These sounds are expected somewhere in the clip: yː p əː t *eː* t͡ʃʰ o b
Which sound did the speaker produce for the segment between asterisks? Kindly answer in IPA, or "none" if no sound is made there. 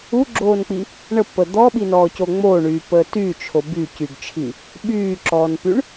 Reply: yː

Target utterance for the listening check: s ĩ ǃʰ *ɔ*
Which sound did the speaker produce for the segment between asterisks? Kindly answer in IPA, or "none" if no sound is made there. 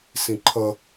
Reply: ʌ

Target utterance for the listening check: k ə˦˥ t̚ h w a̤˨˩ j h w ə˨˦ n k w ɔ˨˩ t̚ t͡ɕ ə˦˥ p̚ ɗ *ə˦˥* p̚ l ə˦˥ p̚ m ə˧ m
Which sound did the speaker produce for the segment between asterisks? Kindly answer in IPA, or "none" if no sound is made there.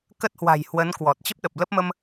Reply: ə˨˩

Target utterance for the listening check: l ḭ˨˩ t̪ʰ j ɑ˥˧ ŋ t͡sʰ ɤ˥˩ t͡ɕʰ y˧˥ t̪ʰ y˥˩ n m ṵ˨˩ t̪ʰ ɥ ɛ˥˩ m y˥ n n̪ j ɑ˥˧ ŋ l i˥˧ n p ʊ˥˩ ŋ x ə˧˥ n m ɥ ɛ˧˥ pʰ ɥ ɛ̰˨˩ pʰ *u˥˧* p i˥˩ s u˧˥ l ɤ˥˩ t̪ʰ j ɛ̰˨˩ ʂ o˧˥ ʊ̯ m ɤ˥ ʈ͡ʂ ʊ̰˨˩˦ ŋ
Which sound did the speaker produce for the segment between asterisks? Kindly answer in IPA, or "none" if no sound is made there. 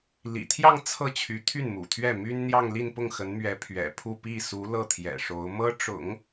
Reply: u˥˧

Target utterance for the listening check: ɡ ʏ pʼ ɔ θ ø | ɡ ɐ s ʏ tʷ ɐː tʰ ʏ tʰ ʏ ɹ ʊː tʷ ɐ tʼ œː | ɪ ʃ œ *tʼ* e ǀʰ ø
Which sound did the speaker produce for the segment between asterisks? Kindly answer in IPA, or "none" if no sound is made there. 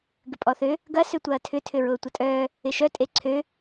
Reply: tʼ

